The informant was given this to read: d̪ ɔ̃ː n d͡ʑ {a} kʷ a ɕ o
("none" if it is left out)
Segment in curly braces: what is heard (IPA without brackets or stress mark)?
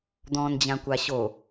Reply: ã